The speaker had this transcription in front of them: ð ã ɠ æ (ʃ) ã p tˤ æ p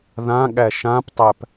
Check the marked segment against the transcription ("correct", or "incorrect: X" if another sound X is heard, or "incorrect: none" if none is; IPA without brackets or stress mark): correct